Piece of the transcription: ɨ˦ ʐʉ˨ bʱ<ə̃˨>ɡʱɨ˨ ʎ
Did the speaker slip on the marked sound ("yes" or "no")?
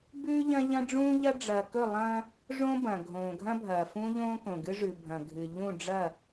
yes